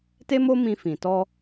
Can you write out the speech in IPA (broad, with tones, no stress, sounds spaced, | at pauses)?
t e˦ m o˦ m ĩ˧ f ĩ˨ t ɔ˧